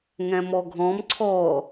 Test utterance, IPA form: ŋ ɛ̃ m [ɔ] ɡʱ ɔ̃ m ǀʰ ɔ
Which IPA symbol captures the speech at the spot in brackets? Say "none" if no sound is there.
ɔ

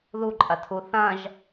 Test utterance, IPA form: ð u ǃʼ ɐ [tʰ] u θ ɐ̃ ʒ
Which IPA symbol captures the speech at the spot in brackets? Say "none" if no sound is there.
tʰ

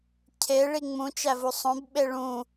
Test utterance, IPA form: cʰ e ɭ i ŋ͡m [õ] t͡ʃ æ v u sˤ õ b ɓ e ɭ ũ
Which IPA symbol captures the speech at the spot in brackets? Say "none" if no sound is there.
ũ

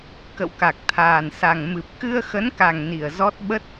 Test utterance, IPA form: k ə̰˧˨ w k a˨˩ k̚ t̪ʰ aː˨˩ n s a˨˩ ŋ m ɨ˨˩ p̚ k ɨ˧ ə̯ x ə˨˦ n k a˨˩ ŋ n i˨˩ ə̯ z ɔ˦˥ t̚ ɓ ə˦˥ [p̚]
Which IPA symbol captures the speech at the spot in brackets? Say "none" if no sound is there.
t̚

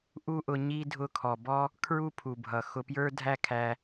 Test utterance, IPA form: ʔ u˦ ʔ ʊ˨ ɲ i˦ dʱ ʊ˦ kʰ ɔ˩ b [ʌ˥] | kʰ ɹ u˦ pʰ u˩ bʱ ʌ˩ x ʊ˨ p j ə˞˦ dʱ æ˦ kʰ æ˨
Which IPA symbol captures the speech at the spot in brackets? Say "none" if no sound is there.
ɔ˥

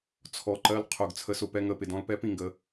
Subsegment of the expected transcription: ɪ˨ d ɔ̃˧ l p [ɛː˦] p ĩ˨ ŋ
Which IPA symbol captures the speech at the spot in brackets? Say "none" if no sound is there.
ɛː˦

